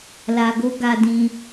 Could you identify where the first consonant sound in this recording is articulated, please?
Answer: alveolar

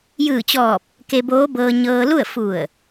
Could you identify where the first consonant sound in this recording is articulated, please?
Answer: palatal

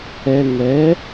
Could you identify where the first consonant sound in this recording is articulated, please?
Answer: velar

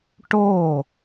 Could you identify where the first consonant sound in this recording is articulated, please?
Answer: retroflex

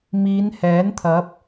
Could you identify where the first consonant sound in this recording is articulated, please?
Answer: labial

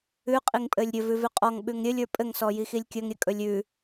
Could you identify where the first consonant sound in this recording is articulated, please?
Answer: uvular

